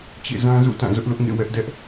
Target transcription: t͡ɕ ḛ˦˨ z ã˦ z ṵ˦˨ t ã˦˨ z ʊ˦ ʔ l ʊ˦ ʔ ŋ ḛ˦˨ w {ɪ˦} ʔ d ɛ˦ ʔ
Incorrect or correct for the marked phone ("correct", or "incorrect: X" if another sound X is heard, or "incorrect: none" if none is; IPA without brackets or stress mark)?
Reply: incorrect: ɛ˦